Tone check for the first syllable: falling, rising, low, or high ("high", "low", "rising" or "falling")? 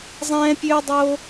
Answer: high